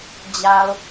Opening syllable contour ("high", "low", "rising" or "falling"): low